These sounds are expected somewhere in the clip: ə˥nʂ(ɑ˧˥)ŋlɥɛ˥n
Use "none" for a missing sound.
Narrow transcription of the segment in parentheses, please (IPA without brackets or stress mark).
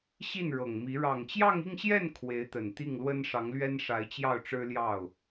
ɑ˧˥